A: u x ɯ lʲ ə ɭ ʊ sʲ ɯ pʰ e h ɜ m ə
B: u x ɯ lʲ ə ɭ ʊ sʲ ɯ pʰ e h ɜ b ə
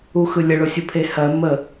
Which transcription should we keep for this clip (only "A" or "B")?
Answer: A